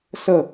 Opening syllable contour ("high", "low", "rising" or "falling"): falling